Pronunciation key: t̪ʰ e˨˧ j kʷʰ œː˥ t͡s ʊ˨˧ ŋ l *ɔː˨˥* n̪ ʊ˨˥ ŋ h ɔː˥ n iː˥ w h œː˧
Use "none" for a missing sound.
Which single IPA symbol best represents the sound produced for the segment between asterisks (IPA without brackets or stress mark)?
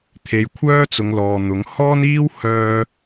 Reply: ɔː˨